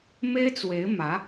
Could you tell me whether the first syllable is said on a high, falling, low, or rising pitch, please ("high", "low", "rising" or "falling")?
high